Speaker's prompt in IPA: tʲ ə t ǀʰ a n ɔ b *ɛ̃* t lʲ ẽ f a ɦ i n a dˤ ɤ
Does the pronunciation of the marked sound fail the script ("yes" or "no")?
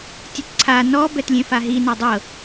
yes